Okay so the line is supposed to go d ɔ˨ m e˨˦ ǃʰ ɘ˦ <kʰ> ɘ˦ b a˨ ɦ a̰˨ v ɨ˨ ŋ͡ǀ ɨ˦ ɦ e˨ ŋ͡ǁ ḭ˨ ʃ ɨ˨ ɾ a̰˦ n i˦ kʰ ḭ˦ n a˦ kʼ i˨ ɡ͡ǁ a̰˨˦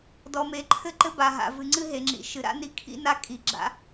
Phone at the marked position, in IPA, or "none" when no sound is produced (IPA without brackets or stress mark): ǃ